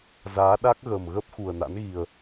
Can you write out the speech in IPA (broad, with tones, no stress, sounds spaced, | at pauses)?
z aː˨˦ ɗ a˦˥ k̚ ɣ ə˨˩ m ɣ ə˦˥ p̚ x u˨˩ ə̯ n a̰˧˥ n ɣ i˨˩ ə̯